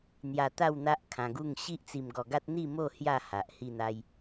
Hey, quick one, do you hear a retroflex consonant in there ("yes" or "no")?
no